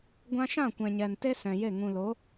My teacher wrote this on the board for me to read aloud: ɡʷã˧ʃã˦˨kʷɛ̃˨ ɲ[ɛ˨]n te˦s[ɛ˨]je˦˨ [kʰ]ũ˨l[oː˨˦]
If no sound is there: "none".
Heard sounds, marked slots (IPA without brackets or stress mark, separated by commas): ɛ˨, ɛ̃˨, ŋ, o˨˦